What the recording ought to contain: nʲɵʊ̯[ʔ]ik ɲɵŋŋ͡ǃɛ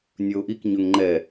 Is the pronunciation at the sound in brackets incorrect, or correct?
correct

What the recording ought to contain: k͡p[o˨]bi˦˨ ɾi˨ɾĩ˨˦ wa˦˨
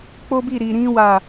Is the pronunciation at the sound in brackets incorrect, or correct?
incorrect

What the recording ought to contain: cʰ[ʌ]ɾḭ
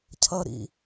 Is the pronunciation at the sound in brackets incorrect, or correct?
correct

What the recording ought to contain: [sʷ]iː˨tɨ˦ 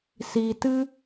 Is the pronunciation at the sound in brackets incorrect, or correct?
incorrect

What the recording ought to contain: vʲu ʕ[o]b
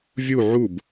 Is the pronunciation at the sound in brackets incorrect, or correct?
incorrect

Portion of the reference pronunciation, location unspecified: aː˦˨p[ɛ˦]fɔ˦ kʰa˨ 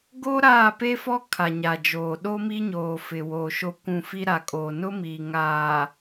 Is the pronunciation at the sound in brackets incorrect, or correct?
incorrect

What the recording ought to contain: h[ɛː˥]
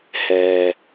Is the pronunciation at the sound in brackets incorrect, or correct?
incorrect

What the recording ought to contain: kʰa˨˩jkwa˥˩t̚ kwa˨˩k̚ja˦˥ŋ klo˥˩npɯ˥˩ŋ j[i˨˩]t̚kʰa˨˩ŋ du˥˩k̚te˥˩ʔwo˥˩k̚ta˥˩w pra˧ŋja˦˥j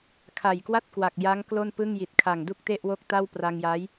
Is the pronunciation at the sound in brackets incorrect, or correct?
correct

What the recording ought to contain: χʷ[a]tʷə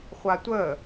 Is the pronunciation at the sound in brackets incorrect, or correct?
correct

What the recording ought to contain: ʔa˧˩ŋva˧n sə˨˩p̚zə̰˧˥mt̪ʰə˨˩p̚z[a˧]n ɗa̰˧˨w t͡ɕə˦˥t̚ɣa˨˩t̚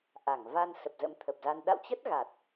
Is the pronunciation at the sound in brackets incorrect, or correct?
correct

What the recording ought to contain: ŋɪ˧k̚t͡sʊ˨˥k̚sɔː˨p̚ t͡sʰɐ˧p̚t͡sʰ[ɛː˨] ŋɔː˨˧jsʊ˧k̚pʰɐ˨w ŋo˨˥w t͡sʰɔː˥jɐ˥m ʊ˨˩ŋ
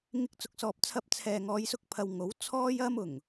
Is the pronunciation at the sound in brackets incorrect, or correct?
correct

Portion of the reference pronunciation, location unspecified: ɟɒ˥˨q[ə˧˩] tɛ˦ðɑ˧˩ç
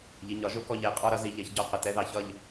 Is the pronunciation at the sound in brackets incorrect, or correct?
correct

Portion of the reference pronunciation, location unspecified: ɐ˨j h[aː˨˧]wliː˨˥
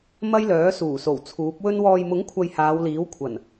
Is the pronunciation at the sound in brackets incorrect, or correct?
correct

